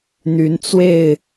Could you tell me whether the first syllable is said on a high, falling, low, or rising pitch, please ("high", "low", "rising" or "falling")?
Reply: rising